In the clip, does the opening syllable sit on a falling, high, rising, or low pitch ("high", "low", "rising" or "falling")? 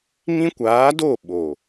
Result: high